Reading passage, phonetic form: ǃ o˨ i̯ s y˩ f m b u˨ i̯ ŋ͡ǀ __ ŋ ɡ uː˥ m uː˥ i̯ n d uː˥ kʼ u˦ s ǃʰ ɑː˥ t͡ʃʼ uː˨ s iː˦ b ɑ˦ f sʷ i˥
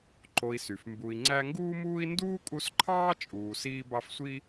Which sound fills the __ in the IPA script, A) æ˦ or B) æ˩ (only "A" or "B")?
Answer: A